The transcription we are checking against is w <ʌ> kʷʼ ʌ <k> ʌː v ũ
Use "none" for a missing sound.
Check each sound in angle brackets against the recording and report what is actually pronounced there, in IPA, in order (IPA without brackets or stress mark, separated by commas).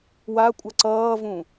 a, ǀ